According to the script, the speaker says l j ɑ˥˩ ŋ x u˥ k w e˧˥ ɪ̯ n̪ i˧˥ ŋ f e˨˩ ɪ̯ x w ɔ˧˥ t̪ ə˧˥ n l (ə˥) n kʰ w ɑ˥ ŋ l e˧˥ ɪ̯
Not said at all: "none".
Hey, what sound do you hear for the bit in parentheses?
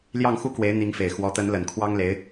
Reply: ə˨˩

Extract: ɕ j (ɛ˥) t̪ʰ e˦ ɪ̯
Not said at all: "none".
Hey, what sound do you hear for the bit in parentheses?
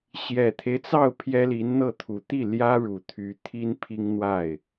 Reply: ɛ˨˩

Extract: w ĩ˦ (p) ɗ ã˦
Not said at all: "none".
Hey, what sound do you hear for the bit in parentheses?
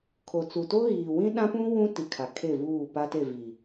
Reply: none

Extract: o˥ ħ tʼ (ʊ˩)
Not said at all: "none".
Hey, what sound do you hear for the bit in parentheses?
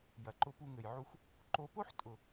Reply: ʊ˩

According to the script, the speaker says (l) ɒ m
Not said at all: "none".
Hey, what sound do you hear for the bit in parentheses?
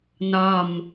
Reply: n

